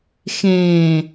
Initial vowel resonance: nasal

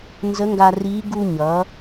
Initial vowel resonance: oral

